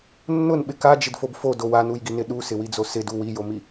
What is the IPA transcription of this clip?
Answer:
nː ʊ n ɓ ɪ k a d͡ʒ ɪ d f o b f o d o w a n u j ɡ i n ɪ ɗ u s ɪ w i d͡z o s ɪ d u w i j o m i

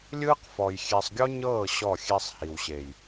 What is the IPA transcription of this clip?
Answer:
lʲ ɯː˦ q f ɔ˨ j xʲ e˨ sˤ ɡʲ ɔ˦ ɲ ɤː˦˨ ɕ ɔ˦˨ xʲ e˦ sˤ h i˨ w ɕ e˨ j

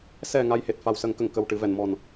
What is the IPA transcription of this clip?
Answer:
s ɛ˨˩ ŋ a˧ j h e˨˩ t̚ f a˨˩ w s ə˨˩˦ ŋ k ə˨˩˨ ŋ k ə˨˩ w ʈ ɨ˨˩˦ v ɛ˨˩˨ n m ɔ˨˩ n

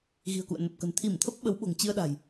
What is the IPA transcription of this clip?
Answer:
ɣ i̤˨˩ ə̯ k ṵ˧˨ ə̯ n ə˨˩ p̚ k ə̤˨˩ n t̪ʰ i˧˩ m t̪ʰ ə˦˥ p̚ ɓ ə˨˦ w ɓ o̤˨˩ ŋ t͡ɕ ɨ˧ ə̯ ɗ a̤˨˩ j

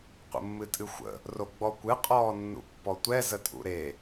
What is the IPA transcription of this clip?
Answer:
qʷ ə̰ mː ɨ tʼ ɨ xʷ ə̰ | r o ɡ͡b ɔ kʷ ɨ qʼ ɔː nː ṵ pː ɔ tʷ ɛ z ə tʼ ṵ ɾ e

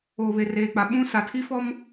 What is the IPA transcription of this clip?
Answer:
oː˨ β e˨ r eː˨ k͡p a˨ ɓ ũ˦ s a˨ tʰ i˦ f ɔ˦ m

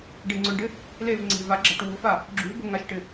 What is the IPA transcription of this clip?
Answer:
ɖ e ŋ͡ǀ ʊ ɳ ɖ ɪ | l e v ŋ͡ǀ e̤ v a ɡ͡ǁ a̤ ʈ w o̤ f a | ɡ͡ǁ ṳ b ʊ ŋ a ʃ ʈ ɪ

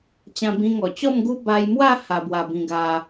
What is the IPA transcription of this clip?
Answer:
t͡ɕ ã˧ b ĩ˧ ŋ ɔ˨˩ t͡ɕ ɔ˥˧ m ɡ u˦ b a˧ j m w a˥˧ h a˧ b w a˧ b ĩ˧ ɡ a˧

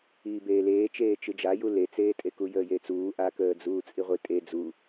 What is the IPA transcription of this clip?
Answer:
iː b eː l eː t͡ʃ eː t͡ʃ ɨ d͡ʒ a j u l e t͡s eː tʼ e k u j əː j e t͡s uː ʔ a k əː d͡z uː t͡sʼ i ʁʷ i tʼ e d͡z u

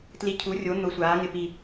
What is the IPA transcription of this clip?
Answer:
t l i˧˩ cʰ u˩˥ rʲ o˩˥ n̪ ʊ˨˩˦ sʷ aː˩˥ ŋ ɪ˧˩ p i˧˩

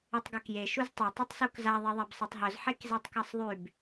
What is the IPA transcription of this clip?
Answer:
e tˤ ɡ œ k j e ʃ u z tˤ e tˤ u tˤ s u k z a ðˤ e ðˤ a b sˤ e tˤ ɦ œ z ħ e k z e tˤ k a sˤ ðˤ y b

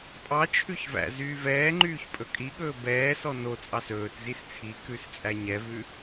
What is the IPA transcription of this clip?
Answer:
pʼ ɑ t͡ʃʰ ʉ ç v æ̰ z yː v ɛː ŋ͡ǃ yː ç pʼ ɵ kʼ i ɠ ɵː b ɛː s ɔ n o t͡sʼ ɑ s ɵː t z i s t͡sʰ i k ʉ s t͡sʼ æ ɲ ɛ v ʉ

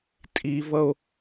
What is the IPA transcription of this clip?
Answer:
tʼ i v ʌ o̯

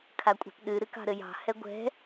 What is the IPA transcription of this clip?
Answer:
kʰ a kʷʼ a̤ p ɗ ɨ ɾ ɨ k ɑ̤ ɾ ɘ j ɑ̤ h ɛ ɡʷ ɛ̤

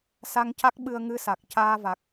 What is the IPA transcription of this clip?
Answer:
s a˧ ŋ c a˦˥ k̚ ɓ ɨ˧ ə̯ ŋ ɨ˧ s a˨˩ k̚ c aː˧ v a˨˩ k̚

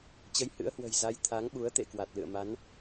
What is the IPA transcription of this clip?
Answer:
t͡ɕ ə˨˦ j h ɨ̰˧˥ ə̯ h w ə̤˨˩ j z a˨˦ j t̪ʰ a˨˦ ŋ ɓ u˨˦ ə̯ t̪ ḛ˧˨ k w a˨˩ t̚ l ɨ̰˧˨ ə̯ m a˨˦ n

